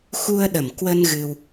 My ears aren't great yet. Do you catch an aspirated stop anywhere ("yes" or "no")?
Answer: no